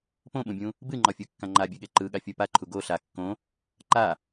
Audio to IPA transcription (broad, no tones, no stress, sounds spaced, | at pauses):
p õ ɓ ũ bʲ ũ | b ɨ ŋ͡ǃ ɒ fʲ u kː ã ŋ͡ǃ a bʲ ɨ ɠ e ǃ ɯ ɠ a fʲ o p a ǃʰ u ɡ o ɬ a kː õ | ǃ a